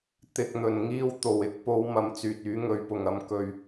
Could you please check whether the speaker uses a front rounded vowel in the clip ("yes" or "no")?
yes